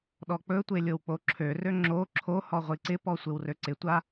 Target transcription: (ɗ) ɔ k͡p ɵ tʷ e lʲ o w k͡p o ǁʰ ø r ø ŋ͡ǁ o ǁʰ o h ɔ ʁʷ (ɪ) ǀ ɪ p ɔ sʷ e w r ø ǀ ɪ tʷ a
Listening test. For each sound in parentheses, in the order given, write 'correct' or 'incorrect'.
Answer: correct, incorrect: i

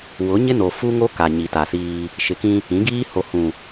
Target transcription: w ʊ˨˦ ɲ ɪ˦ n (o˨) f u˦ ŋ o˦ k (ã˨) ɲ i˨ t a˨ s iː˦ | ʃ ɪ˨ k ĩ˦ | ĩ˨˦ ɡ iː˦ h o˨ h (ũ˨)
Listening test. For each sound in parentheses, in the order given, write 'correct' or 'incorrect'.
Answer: correct, incorrect: a˨, correct

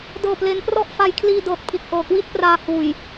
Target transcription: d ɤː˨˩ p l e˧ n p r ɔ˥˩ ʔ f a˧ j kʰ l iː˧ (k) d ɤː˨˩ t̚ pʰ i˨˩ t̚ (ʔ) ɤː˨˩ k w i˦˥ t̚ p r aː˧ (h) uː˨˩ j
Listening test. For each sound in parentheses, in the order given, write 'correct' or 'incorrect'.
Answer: incorrect: none, correct, correct

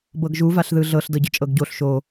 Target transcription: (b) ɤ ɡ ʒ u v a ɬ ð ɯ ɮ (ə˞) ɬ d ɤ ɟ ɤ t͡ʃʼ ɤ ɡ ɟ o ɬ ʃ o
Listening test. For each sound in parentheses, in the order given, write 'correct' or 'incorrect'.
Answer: correct, incorrect: ɤ

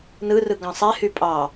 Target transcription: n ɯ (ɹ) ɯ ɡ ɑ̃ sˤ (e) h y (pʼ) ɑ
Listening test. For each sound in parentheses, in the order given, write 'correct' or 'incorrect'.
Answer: incorrect: r, correct, correct

